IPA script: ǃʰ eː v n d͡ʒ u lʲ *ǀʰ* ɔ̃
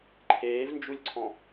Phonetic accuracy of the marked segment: correct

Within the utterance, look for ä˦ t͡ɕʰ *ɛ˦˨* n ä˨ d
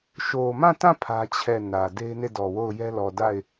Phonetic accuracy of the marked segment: correct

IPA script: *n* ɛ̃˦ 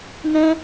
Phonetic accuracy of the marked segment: correct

